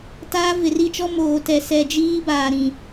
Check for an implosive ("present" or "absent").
absent